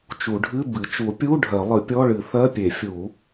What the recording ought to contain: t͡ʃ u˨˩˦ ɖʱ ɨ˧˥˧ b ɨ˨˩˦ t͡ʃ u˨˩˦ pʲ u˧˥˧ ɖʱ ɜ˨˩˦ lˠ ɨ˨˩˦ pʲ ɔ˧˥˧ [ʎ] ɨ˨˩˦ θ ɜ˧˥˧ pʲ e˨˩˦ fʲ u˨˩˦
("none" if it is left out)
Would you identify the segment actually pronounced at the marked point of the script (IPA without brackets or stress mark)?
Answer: ɭ